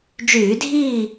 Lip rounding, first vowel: rounded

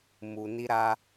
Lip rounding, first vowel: rounded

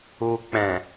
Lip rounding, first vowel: rounded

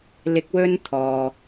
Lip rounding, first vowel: unrounded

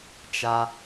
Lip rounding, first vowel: unrounded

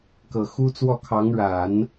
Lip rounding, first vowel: unrounded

